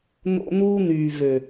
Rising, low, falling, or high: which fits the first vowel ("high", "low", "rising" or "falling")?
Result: high